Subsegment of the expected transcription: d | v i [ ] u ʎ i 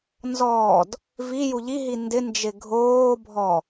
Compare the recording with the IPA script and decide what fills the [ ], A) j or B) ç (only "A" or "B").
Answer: A